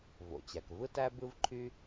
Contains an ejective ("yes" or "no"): no